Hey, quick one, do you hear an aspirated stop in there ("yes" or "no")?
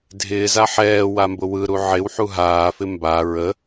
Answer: no